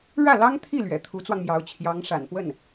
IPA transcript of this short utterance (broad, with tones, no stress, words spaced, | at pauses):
ɻä˥˩lɑ˥ŋt̪ʰi˥˩ lɥɛ̰˨˩t̪ʰu˧˥t͡swɑ˧ŋmjɑ˧˥ʊ̯ t͡ɕʰjɑ˧˥ŋʂa̰˨˩npwə˥˩n